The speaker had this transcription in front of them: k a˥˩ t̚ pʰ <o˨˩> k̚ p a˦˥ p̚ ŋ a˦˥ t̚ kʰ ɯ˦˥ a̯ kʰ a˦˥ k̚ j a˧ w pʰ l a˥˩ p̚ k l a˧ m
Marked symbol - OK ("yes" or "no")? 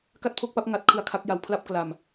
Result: no